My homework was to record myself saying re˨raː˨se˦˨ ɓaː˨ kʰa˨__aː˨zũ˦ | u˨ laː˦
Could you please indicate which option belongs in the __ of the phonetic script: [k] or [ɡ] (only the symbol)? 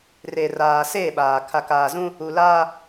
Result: k